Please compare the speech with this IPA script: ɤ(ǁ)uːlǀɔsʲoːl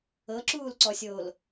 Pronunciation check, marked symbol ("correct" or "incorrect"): correct